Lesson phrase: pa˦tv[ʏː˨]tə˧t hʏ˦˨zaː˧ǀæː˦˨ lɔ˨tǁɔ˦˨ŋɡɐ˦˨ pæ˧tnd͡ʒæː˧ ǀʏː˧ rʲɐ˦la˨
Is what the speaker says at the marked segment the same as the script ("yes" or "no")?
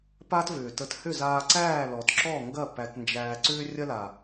yes